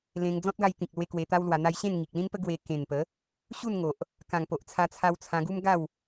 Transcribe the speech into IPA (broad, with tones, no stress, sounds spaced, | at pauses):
l ẽ˧ ŋ d͡z ɔ̃˦ t̚ ɡ a˧ j t̪ ĩ˨ k̚ l w e˧ k w e˧ t̪ a˦ w l w a˧ n̪ a˧ j ɕ ẽ˥˧ n ŋ i˨ k̚ l ĩ˦ n p ə˦ ɡ w e˧ k ẽ˨˩ n p ə˨˦ | ɕ u˥˧ n ŋ o˨ ʔ | k ã˨˩ ŋ p o˨ ʔ t͡sʰ a˧ t͡sʰ a˧ w t͡sʰ ã˧ ɡ u˦ m ɡ a˥˧ w